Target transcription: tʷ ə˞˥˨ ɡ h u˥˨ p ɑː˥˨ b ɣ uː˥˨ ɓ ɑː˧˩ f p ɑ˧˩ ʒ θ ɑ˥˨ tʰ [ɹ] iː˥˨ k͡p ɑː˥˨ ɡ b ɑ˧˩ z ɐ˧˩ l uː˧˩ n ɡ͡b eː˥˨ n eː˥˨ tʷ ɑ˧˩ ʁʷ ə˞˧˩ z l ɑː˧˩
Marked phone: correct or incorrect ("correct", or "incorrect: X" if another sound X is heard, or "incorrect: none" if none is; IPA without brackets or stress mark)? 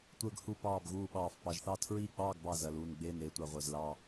correct